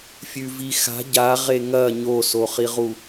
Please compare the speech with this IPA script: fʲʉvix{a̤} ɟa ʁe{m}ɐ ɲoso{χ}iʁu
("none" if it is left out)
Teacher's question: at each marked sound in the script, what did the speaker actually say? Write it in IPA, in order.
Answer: a̤, ŋ, χ

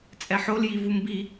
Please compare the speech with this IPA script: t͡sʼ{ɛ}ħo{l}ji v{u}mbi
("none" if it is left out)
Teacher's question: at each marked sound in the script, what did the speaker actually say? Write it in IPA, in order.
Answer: ɛ, l, u

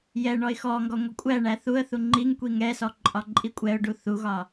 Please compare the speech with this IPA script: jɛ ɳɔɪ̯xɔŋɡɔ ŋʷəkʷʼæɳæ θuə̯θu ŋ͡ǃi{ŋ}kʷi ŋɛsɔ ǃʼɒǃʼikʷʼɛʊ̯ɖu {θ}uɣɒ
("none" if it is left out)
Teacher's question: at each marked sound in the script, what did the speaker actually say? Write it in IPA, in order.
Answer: ŋ, θ

